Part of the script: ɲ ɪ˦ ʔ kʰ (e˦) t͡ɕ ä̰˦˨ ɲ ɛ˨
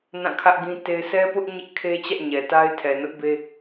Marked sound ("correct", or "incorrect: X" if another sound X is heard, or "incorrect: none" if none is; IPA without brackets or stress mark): correct